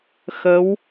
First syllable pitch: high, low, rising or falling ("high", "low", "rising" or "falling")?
rising